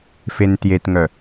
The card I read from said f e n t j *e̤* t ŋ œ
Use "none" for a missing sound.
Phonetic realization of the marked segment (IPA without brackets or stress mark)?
e